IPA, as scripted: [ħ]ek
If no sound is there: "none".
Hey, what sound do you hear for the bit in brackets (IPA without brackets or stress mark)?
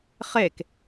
χ